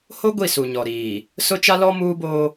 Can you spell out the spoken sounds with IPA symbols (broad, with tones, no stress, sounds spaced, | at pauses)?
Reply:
h o˦ ɡʷ i˦˨ s u˨ ɲ ɔ˨ ɾ iː˨ | s ʊ˦ t͡ʃ a˦ l ɔ˦ m uː˦ b oː˦